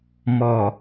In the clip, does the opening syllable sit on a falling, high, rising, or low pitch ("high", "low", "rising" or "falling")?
low